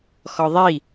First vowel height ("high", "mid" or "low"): mid